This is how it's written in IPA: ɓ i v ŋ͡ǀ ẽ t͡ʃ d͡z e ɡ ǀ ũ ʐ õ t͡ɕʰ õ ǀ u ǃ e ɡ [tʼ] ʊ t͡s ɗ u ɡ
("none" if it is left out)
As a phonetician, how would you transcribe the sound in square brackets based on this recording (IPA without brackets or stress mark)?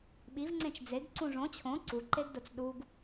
d